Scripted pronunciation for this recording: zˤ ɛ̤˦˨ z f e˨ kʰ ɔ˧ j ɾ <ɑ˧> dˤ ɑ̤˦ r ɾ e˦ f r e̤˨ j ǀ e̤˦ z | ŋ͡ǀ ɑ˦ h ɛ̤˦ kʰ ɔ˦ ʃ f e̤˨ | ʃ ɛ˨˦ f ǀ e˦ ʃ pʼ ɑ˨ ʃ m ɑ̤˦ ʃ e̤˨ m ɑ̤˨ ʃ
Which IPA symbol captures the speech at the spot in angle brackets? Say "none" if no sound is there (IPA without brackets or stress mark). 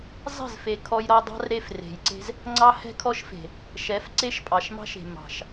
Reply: ɔ˧